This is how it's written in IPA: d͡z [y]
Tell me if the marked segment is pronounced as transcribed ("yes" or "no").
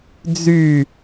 yes